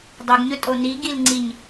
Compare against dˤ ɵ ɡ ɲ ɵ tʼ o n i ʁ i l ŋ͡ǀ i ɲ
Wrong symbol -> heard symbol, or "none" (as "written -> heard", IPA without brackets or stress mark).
ʁ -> ɡ